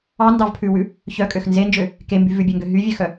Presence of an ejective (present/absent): present